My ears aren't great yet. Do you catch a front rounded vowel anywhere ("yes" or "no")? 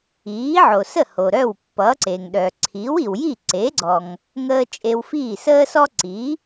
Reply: yes